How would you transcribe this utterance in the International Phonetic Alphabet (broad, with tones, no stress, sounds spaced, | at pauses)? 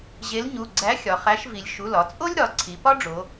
ʑ e˨˥ l ɲ u˩˧˩ ɡ͡ǀ æ˨˥ xʲ ɒ˩˧ χ æ˨˥ ʃ v i˩˧ lʲ ʃ u˩˧˩ l ɒ˩˧ t͡sʼ o˥ lʲ ɾ ɒ˩˧ ǀʰ i˩˧ p ɒ˥ ɖ͡ʐ o˩˧